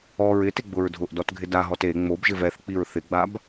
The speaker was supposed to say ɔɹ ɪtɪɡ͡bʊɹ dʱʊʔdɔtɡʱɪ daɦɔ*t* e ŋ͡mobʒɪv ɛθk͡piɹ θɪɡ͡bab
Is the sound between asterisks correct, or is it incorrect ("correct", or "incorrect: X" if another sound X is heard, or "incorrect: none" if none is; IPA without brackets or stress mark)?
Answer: correct